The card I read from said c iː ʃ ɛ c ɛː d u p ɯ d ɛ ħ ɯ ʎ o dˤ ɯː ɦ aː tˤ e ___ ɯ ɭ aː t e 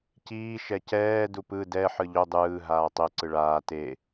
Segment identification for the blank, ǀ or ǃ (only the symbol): ǀ